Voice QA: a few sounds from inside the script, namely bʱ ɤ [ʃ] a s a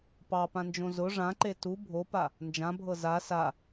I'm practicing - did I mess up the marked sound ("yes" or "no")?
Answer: yes